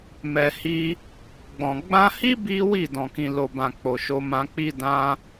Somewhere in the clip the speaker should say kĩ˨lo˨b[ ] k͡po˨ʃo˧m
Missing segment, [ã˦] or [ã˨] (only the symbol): ã˨